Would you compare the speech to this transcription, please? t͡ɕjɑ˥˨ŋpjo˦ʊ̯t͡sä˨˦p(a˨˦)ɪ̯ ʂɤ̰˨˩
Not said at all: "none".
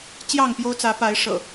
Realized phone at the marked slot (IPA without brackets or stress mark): a˨˦